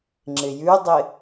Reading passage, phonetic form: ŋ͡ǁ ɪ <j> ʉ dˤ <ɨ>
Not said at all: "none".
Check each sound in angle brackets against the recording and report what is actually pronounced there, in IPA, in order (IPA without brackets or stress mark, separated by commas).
j, ɪ